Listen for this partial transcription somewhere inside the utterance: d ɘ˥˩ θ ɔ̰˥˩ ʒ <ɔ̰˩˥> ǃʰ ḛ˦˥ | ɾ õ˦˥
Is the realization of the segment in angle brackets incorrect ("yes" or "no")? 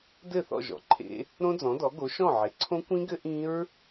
no